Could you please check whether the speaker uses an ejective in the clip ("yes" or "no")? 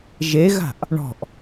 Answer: no